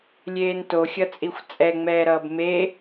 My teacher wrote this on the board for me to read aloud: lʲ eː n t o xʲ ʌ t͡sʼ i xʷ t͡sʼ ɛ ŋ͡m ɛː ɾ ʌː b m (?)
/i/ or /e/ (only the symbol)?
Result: e